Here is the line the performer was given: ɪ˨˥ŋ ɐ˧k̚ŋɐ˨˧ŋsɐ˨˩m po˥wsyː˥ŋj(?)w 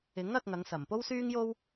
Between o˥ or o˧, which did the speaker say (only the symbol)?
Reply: o˥